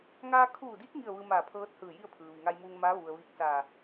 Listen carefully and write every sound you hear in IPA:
ŋaː˧kʰuː˧˩diː˧˥k̚ ŋi˥˨ə̯ʋɯː˧ maː˧˩pʰɤː˧˥t̚hɯː˧˩ ji˥˨ə̯pʰɯː˩ ʋi˩ŋa˧jmuː˧ŋmaː˧˥ ʋu˩ə̯ ʋi˧˥k̚saː˧˩

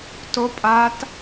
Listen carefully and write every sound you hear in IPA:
to pʼat

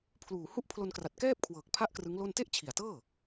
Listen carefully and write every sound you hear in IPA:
pʰluː˨˩hu˥˩ʔpʰlo˧nkra˨˩t̚ kɛː˥˩p̚kʰwɤː˨˩k̚pʰa˦˥ʔ krɯ˦˥ŋlo˥˩n te˥˩ʔt͡ɕʰi˨˩a̯tɤː˥˩

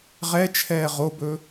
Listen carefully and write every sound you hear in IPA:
ʁɛt͡ʃʰɛː ʁobɵ

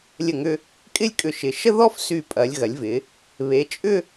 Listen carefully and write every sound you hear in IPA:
lʲə˧˩ŋʏ˧ | kʼɪ˥lʲkʼʏ˧˩ʃɪ˩˧ ʃə˥ðɔ˥fsy˧˩pʼɐ˩˧lʲ ɣɐ˩˧lʲvɪ˩˧ | βe˩˧t͡ʃʼʏ˥˧

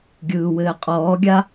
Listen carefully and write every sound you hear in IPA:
ɡʲɯːwɘːqʼɔːɡʲa

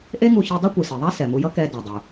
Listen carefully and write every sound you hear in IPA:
ʔe˥ŋu˧çi˧ dˤu˥kʷɯ˩si˩ðˤa˥ sɛ˩mu˧jʌ˥ kɛ˧ da˩dˤu˩

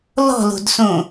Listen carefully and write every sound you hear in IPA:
lɔ̤lo̤dsõ

